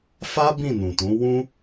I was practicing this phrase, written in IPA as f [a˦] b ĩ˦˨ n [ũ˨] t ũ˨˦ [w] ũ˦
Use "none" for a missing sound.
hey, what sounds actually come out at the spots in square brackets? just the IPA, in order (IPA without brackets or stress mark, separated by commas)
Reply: a˦, ũ˨, w